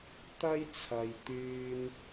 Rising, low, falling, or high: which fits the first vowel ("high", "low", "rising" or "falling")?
high